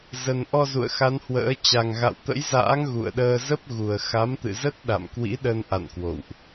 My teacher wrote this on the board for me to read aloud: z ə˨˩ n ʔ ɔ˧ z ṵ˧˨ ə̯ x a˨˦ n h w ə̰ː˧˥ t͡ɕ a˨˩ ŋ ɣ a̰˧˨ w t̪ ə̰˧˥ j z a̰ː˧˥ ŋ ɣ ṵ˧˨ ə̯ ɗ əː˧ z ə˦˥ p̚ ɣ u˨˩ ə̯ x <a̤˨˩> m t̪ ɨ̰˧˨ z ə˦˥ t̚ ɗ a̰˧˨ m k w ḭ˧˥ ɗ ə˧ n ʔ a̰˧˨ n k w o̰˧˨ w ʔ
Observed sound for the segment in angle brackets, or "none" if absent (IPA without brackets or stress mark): a˨˦